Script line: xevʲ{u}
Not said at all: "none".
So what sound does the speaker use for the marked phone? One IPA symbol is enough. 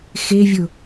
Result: ʊ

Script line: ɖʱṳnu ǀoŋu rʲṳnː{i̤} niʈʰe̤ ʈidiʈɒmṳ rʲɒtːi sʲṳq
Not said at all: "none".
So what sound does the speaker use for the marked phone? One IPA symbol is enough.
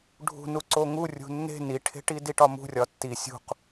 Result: e̤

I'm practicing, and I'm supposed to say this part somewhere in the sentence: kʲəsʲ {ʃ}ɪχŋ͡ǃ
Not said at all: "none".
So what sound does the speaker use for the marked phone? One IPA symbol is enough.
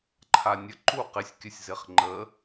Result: z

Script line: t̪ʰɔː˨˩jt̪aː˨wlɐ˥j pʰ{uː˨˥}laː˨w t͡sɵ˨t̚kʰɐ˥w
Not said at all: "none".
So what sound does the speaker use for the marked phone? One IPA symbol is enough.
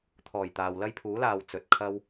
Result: uː˨˥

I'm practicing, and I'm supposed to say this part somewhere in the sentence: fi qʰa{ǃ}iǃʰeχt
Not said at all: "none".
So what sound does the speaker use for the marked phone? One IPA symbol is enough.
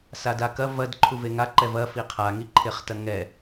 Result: ŋ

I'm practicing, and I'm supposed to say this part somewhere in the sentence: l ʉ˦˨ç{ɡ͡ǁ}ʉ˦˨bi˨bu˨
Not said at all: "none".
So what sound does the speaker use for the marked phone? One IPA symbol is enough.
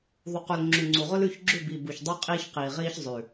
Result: ɡ͡ǁ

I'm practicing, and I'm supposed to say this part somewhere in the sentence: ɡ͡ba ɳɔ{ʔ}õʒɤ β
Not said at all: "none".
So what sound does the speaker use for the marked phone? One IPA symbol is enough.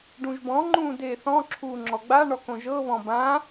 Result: k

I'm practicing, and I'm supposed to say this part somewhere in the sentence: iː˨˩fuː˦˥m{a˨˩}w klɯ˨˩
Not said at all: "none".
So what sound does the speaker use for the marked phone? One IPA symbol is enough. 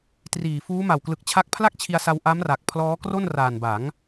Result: a˨˩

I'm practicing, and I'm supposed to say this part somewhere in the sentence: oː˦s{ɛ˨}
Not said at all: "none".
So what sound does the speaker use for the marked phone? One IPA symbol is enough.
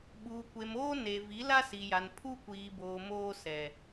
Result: ɛ˨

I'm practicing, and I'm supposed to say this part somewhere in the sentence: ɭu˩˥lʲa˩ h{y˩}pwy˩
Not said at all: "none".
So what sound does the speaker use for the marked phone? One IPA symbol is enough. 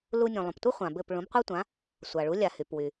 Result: y˩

